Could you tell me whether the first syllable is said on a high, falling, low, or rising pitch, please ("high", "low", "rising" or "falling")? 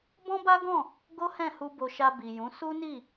high